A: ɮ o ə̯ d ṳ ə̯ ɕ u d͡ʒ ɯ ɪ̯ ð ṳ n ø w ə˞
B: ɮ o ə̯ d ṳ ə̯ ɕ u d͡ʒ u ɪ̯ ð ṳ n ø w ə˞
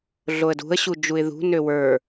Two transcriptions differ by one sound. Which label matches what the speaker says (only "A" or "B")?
B